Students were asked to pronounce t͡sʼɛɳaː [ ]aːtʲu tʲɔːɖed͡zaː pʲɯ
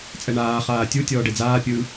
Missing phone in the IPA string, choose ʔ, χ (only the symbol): χ